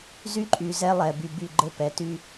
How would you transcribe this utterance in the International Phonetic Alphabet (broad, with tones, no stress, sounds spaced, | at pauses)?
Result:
z y˦ ǃʼ y˨ z ɛ˦ lˠ ɛ˨ b y˨ b y˦˨ ɡ͡ǃ ɘ˦ p ɛ˨˦ t y˦